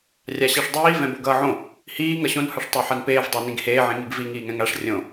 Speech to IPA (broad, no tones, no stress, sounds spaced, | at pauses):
rʲ a ɕ ɛ ʂ dˤ iː v ɛ̃ b o ɡ ʌː ʕ õ | h iː ŋ ʌ ɕ õ n h ʌ ʂ tˤ ɛ ħ a n p eː v dˤ o n ĩ ɡ h eː ʕ ĩ ŋ i ɡ v i ŋ iː ŋ ɛ̃ ŋ a ʂ rʲ õ